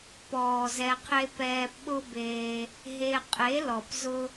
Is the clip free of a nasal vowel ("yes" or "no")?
yes